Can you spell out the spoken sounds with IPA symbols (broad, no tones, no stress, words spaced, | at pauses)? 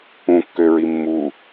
ũkːøɹi mːu